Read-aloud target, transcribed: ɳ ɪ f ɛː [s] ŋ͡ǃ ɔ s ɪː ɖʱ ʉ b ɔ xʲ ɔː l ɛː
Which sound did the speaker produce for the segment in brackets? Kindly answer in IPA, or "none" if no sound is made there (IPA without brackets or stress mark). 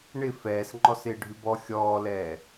s